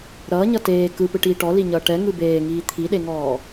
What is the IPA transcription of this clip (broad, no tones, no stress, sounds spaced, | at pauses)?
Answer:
ɾ ʌː ɲ ʌ t eː k ɯ p ɯ ʈ iː ʈ ɔ l i ɲ ʌː ʈ ɛ ŋ ɯ b eː ŋ iː t̪ʰ i ɗ e ŋ ɔː